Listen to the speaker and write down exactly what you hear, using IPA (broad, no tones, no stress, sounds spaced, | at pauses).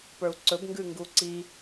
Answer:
p ə˞ u̯ ǀ ɵ b ŋ ɡ ʉ ŋ ɡ u ǀ i